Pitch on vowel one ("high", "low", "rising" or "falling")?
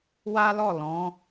high